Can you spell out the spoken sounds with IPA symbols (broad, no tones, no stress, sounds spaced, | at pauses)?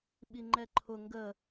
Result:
ɓ i ŋ͡ǃ ɛ ǃʰ ʊ ŋ ɡ ə